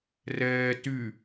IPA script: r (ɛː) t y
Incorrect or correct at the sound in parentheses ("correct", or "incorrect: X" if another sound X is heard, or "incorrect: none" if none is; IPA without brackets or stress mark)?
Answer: correct